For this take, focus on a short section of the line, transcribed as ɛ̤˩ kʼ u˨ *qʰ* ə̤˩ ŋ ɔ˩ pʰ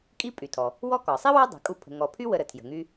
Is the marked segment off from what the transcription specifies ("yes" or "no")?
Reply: yes